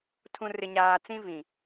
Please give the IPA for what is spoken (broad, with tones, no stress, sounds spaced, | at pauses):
tʰ ũ˨ r ɪ˨ ɲ aː˨ t͡s ĩ˦ v ĩ˨